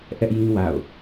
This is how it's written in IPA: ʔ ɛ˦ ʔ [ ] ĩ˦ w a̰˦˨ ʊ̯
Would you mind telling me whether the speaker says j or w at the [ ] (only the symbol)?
j